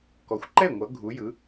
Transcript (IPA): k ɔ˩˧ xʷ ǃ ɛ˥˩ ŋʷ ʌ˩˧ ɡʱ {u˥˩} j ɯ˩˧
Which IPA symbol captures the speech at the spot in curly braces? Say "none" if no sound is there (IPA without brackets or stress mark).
u˩˧